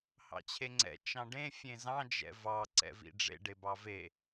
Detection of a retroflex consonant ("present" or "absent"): present